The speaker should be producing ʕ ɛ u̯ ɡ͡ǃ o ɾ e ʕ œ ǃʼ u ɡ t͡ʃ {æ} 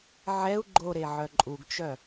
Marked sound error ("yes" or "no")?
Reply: yes